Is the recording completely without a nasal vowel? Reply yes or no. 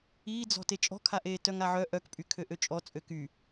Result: yes